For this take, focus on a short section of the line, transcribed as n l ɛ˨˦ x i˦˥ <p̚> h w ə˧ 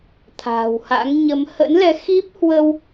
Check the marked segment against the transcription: correct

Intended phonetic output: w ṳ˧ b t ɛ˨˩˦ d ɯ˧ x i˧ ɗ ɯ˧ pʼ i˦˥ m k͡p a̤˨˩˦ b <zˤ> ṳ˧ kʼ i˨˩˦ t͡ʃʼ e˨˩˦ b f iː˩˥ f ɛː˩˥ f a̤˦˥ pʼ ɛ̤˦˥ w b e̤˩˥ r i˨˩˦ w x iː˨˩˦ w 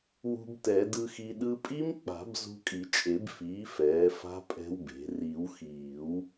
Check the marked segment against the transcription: incorrect: z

